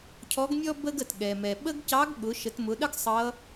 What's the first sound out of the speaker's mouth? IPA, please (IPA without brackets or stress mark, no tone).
cʰ